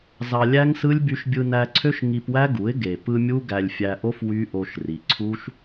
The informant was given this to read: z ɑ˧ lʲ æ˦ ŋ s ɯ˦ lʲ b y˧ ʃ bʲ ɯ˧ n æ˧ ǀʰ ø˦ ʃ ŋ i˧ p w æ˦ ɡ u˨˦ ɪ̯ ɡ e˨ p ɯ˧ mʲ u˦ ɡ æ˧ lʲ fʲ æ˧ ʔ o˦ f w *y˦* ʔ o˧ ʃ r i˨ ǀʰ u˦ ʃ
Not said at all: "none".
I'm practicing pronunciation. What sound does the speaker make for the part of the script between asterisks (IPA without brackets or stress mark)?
y˦